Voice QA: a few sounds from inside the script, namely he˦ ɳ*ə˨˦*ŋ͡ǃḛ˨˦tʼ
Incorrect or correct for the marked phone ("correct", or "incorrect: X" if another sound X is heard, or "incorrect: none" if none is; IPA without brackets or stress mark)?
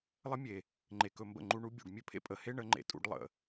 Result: correct